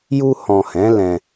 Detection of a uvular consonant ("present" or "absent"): absent